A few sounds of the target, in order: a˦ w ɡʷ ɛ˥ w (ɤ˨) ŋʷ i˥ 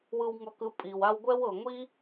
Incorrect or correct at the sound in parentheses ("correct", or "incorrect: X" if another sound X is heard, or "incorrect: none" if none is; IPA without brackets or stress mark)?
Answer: correct